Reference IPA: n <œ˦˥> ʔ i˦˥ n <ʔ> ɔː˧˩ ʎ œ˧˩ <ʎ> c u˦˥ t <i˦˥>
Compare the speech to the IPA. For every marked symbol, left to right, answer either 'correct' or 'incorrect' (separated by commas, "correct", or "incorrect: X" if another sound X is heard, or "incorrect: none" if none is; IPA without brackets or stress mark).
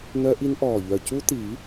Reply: correct, correct, incorrect: none, incorrect: i˨˩˦